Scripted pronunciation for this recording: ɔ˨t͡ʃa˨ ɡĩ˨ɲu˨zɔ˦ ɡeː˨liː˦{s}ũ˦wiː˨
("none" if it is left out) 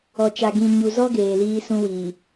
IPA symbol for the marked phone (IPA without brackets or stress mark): s